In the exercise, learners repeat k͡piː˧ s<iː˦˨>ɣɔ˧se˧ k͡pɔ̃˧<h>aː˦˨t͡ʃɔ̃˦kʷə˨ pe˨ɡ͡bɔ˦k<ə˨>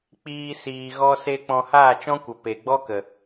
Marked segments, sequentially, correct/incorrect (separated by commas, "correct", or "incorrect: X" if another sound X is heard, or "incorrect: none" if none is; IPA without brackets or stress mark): incorrect: iː˨, correct, correct